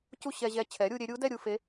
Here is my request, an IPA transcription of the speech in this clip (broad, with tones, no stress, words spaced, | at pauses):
cu˥˧ɕɛ˧ʑɛ˧˥ t͡ɕʰɛ˩˥ɾʲu˧ɾʲe˧˥ ɾʲu˧˥dɛ˥˧ ɾʲu˥˧ fe˧˥